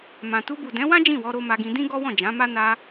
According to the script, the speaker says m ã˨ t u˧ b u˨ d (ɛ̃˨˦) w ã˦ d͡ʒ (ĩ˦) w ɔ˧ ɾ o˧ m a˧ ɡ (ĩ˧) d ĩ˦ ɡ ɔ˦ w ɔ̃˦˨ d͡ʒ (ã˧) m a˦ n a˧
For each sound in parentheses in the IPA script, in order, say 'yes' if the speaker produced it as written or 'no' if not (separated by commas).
yes, no, yes, no